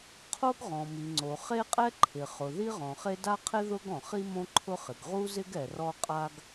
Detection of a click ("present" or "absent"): present